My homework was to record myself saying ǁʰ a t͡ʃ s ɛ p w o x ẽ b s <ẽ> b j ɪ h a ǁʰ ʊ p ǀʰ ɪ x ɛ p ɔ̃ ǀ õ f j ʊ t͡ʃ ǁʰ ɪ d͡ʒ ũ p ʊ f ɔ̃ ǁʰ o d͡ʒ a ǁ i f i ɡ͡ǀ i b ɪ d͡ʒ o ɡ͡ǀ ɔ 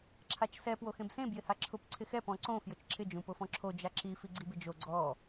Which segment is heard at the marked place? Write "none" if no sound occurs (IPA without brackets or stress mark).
ẽ